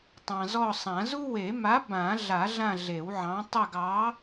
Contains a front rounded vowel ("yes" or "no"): no